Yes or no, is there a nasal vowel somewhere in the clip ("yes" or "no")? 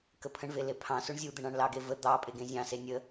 yes